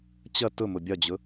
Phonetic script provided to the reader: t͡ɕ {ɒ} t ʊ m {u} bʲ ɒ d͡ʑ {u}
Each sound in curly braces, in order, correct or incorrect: incorrect: ʌ, incorrect: ʊ, incorrect: ʊ

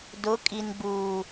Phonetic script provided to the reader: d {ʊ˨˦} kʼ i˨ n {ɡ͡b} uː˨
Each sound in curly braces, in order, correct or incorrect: correct, correct

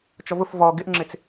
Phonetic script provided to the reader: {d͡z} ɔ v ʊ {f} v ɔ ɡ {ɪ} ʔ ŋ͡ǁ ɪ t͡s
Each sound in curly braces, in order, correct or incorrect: incorrect: t͡ʃ, correct, correct

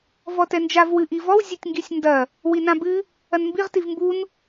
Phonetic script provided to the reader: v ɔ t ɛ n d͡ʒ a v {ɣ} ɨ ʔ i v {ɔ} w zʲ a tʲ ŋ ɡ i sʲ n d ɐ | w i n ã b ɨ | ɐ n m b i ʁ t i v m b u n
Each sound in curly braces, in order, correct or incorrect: incorrect: w, correct

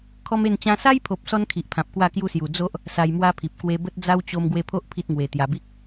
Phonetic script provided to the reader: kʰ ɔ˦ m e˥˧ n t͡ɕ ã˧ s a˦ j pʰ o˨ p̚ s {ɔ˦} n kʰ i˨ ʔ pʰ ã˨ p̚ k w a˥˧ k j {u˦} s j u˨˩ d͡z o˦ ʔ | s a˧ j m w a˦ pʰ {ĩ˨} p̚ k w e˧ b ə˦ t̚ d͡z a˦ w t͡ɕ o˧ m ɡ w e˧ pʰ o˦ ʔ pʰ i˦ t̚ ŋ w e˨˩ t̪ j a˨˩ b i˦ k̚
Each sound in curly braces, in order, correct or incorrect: correct, correct, incorrect: i˨

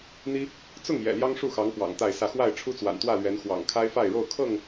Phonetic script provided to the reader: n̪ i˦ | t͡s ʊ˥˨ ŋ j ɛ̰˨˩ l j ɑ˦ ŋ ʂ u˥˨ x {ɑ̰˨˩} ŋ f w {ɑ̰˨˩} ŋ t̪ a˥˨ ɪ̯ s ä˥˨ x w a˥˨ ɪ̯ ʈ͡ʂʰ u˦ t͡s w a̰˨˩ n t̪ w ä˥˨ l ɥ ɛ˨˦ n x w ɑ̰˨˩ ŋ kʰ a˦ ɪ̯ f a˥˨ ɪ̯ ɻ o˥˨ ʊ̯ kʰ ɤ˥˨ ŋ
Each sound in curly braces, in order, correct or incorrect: incorrect: ɑ˨˦, correct

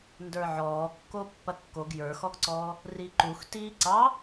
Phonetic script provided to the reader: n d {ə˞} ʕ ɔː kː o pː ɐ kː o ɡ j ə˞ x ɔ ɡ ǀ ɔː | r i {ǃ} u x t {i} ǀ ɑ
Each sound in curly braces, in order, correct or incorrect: correct, correct, incorrect: iː

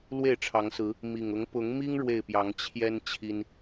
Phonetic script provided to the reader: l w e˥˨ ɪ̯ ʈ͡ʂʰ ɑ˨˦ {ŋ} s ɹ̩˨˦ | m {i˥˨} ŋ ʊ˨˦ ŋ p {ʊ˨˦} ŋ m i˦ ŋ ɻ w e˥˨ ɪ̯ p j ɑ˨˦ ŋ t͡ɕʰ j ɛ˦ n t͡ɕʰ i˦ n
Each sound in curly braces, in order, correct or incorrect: correct, incorrect: i˨˩, correct

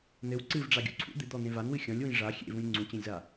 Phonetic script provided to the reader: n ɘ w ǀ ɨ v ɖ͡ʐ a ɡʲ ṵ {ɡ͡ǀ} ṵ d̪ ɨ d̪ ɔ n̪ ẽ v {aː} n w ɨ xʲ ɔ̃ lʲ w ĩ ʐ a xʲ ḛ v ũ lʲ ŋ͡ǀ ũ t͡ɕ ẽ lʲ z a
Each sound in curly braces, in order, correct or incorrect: incorrect: ǀʰ, incorrect: a

